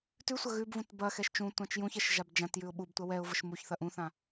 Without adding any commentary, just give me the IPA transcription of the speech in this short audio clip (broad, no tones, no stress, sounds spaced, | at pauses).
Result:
t ʉ sʷ ɐ ɣ ʉ b v ũ t b ɐ x ɛ ʃ t͡ʃ ũ tʷ ã t͡ʃ j ũ ç ɛ ʃ ʒ a b d͡ʒ ã t j ʉ ʊ̯ ɓ u b tʷ ɐ w ɛ ʊ̯ v ə ʃ m u ç θ ɐ ʔ ũ θ ã